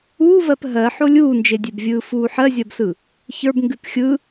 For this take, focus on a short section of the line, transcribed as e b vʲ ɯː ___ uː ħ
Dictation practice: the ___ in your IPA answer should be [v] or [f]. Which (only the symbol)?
f